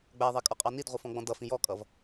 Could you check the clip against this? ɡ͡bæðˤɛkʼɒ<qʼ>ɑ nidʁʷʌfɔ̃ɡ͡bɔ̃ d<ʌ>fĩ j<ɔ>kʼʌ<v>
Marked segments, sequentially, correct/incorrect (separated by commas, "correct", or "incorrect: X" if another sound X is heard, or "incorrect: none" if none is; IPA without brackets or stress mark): correct, correct, correct, correct